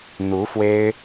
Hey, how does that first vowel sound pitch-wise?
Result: rising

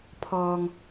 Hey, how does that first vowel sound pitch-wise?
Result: low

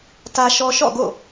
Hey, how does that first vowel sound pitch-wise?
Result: high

